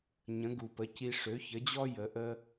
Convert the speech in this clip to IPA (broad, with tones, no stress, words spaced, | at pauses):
ɲə̃˩˥ɡu˩pə˩˥ci˧ ʂø˩˥çə˩˥d͡ʑɔ˥ jə˩˥ʔə˥